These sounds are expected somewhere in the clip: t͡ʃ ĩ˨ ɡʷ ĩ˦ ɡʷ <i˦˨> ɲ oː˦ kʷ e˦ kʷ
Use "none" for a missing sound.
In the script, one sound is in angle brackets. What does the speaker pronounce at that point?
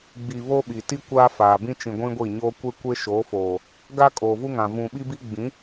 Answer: i˦˨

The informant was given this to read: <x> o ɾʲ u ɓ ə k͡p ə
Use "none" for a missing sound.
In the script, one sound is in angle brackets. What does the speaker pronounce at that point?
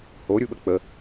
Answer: h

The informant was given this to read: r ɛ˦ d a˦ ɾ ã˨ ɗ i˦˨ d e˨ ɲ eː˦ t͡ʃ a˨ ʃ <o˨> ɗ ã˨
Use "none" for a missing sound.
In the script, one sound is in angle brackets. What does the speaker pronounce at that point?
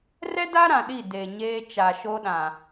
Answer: o˦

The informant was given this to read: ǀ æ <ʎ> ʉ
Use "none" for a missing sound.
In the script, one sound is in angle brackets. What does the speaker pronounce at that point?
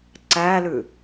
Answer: l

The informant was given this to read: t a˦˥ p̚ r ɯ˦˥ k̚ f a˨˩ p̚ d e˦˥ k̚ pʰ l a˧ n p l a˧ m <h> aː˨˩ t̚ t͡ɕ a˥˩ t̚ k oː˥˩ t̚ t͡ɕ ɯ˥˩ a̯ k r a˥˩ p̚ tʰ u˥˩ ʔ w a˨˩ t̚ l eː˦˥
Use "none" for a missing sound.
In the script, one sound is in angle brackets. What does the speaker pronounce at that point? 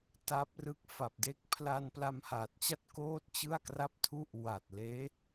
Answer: h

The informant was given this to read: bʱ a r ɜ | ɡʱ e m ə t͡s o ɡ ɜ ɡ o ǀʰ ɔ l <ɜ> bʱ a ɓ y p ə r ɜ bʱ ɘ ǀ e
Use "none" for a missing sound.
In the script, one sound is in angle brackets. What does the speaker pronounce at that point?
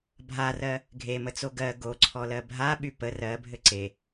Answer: ɜ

